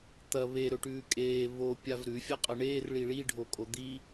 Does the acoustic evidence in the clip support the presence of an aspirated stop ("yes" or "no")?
no